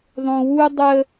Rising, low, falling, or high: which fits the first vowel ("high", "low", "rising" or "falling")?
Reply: low